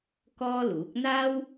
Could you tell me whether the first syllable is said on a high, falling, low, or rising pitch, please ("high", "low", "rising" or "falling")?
high